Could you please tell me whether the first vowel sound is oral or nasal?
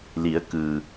oral